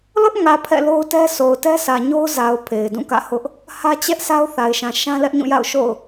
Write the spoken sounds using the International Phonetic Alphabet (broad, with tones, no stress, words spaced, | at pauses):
lʊ˦ʔŋä˨ pʰɛ̰˦˨lo˦ʊ̯tɛ˦ sʰo˨ʊ̯tɛ˦sʰä˨ɲo˦ʊ̯ za˨ʊ̯ pʰe˨ɪ̯dũ˦˨kä̰˦˨ hʊ˦ʔ | hä˦t͡ɕɛ˦ʔ sa˦ʊ̯θa˨ɪ̯ʃã˨ ʃã˦lɛ˦ʔɲũ˦˨ja̰˦˨ʊ̯ ʃo̰˦˨ʊ̯